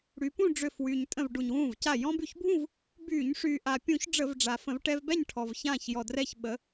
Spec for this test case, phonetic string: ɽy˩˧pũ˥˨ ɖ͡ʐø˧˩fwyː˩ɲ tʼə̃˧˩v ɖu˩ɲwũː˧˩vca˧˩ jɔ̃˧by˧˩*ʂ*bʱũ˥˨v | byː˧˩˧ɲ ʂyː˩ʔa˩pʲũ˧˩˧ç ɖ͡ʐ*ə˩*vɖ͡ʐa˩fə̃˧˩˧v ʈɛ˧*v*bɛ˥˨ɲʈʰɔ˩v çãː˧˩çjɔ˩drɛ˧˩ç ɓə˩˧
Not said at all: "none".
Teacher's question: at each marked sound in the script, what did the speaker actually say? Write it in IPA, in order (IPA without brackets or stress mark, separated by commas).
ç, ə˧˩˧, v